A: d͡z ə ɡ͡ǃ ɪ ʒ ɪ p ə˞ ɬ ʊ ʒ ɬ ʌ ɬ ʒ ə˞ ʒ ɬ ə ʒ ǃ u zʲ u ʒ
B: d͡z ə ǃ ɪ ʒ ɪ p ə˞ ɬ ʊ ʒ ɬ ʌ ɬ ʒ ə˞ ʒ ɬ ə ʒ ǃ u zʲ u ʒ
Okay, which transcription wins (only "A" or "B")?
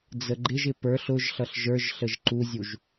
A